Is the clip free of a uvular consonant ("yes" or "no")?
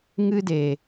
yes